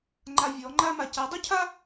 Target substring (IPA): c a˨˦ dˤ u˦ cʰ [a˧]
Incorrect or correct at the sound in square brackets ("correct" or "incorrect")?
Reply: incorrect